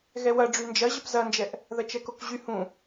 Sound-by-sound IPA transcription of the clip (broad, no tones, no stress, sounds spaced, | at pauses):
ɣ ɛ w ɐ ɖ͡ʐ y n d͡ʒ ɐ ʑ ə p z ɐ n d͡ʒ ɛ ʔ | ð ɐ t͡ʃ ɛ k o k ʑ y h ũ